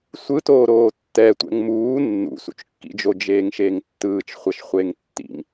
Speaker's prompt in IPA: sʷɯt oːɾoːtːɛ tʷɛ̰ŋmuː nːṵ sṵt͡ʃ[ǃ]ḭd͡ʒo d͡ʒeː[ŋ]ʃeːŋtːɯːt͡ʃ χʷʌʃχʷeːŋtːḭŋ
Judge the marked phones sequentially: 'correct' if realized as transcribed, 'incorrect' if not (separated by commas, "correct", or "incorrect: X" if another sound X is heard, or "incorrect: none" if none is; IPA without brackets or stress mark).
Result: incorrect: kː, correct